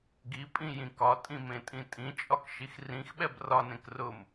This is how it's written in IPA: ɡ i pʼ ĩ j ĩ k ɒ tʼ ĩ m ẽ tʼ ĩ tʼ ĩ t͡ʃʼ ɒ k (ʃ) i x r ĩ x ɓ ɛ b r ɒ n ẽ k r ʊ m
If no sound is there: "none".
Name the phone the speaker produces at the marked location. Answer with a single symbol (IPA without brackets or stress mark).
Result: ʃ